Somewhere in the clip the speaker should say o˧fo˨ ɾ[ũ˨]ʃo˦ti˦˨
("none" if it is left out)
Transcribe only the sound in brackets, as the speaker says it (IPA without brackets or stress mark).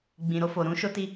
ũ˨˦